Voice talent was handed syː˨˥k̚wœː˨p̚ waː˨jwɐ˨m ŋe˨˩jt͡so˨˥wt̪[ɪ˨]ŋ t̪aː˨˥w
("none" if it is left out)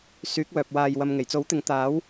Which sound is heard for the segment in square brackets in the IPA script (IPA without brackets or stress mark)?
ɪ˨˥